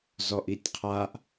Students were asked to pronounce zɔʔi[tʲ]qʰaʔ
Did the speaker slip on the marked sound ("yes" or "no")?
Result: no